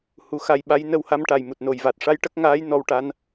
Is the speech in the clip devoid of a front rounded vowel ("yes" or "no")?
yes